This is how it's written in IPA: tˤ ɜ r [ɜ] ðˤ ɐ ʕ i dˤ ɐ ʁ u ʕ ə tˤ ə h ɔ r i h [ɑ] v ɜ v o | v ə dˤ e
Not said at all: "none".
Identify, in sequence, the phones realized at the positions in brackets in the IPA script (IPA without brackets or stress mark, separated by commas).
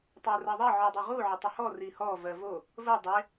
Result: ɜ, ɔ